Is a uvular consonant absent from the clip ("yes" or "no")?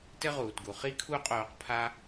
no